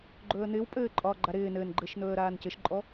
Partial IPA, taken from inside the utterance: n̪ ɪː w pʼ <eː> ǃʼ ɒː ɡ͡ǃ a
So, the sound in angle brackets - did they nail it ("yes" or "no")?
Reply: no